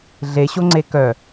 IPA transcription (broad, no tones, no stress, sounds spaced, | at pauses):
ɮ e ɕ o ŋ͡ǀ e k œ